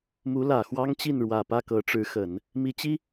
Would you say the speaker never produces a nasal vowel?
yes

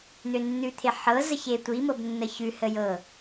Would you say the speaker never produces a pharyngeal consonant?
no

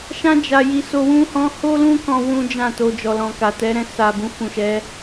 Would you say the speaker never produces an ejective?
yes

